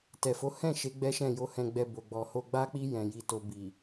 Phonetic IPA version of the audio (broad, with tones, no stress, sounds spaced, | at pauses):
t ɛ˨ f o˨˦ h ɛ̃˦˨ ʃ e˨˦ ɡ͡b ɛ˦ ʃ ɛ̃˦˨ j o˧ h ɛ̃˧ ɡ͡b ɛ˧ b o˨ ɡ͡b ɔ˨ h o˧ ɡ͡b a˦ k͡p i˦ j ɛ̃˧ j i˧ t o˧ b i˨